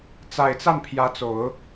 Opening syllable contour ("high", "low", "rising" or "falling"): low